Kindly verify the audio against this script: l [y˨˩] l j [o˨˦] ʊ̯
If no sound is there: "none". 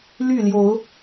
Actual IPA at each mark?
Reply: y˥˨, o˨˦

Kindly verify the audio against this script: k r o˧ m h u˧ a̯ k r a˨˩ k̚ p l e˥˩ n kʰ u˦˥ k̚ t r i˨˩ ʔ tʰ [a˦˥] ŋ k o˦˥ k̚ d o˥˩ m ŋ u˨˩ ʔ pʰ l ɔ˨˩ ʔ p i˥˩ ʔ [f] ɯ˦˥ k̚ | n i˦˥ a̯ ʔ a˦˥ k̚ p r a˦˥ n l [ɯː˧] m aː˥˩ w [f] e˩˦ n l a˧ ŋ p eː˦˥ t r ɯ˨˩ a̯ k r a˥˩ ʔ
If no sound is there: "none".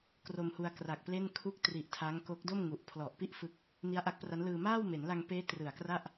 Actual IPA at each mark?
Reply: a˦˥, f, ɯː˧, m

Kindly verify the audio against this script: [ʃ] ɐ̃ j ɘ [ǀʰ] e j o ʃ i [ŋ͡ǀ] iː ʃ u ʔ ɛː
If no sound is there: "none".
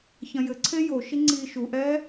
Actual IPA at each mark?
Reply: ç, ǀʰ, ŋ͡ǀ

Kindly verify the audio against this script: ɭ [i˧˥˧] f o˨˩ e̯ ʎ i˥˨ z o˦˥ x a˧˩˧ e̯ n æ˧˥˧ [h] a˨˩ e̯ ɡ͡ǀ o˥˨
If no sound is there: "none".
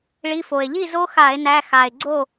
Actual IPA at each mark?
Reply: i˧˥˧, x

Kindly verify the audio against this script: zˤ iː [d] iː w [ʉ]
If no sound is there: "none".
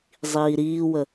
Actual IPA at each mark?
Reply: ɾ, ə

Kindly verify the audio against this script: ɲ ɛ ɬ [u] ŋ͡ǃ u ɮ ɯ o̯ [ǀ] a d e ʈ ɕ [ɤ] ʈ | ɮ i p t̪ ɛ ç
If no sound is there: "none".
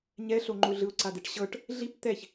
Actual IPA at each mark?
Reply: o, ǀ, ɤ

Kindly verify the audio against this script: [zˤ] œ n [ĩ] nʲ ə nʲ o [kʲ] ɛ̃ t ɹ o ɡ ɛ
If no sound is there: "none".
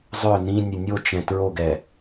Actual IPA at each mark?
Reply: zˤ, ĩ, t͡ʃ

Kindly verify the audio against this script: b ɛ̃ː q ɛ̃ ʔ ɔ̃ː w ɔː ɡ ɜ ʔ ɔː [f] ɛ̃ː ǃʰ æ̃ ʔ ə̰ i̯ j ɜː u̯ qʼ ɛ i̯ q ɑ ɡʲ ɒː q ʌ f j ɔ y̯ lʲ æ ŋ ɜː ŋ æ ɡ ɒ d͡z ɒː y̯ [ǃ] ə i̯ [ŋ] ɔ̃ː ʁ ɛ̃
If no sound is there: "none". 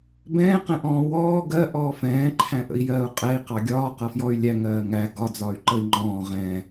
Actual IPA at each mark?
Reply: f, ǃ, ŋ͡ǃ

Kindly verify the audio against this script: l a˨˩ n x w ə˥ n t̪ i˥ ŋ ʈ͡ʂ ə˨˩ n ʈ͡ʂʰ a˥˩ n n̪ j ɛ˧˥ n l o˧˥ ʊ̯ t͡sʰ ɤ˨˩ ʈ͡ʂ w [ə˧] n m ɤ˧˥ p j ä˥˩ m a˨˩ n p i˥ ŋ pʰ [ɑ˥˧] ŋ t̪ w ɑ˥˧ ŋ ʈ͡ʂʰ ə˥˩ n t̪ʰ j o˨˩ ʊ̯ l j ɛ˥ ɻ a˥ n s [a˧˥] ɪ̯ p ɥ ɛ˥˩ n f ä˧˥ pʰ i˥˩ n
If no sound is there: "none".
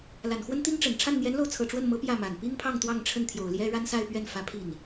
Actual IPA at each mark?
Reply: ə˥˩, ɑ˥˧, a˥˧

